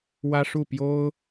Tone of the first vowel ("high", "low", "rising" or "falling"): high